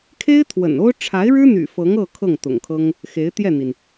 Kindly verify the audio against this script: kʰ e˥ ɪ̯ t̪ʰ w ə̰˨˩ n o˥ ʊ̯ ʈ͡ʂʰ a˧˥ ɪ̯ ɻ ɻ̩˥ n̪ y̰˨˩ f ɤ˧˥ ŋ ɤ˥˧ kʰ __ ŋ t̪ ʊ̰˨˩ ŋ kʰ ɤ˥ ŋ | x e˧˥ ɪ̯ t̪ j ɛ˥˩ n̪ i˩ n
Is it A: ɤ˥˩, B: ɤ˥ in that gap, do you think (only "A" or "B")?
A